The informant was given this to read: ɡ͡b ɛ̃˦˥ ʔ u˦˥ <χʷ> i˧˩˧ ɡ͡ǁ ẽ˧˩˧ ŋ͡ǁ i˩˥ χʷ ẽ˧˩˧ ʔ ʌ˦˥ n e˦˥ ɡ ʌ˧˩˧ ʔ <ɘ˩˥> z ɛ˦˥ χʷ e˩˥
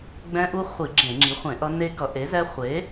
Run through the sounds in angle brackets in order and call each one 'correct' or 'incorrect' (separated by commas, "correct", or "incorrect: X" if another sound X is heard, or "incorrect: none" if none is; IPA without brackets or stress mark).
correct, incorrect: e˩˥